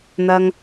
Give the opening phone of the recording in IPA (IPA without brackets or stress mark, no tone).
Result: n̪